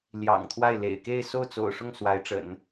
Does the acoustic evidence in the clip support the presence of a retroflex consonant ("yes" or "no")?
yes